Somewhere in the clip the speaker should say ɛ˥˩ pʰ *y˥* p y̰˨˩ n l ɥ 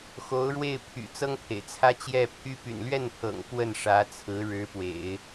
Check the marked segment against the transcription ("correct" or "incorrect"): correct